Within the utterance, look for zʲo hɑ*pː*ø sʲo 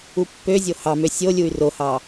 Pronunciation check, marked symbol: incorrect: m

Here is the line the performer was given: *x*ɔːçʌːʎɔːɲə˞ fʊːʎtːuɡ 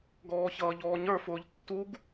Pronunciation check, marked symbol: incorrect: ɡ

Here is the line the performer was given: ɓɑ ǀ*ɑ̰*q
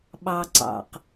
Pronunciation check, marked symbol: correct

